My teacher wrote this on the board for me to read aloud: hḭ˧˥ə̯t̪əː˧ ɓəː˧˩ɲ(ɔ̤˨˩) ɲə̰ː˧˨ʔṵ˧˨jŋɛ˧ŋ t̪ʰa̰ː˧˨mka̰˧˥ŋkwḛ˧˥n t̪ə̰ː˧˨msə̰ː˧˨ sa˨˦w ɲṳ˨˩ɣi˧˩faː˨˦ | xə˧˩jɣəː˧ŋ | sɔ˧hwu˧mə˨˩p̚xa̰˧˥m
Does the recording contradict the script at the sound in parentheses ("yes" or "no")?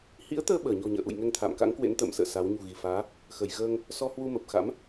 no